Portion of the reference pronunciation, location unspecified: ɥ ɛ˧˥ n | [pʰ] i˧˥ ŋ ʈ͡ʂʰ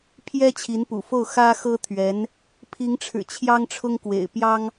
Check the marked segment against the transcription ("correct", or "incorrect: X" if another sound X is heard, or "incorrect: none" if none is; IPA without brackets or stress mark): correct